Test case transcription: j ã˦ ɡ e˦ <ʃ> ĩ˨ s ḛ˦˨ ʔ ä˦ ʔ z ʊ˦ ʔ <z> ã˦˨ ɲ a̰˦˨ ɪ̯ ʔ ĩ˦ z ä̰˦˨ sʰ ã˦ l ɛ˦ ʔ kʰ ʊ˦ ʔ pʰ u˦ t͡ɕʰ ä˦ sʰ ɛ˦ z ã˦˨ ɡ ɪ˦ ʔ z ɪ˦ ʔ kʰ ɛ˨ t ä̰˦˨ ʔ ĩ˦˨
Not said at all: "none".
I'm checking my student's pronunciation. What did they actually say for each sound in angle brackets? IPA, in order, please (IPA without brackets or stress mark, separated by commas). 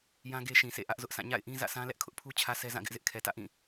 ʃ, s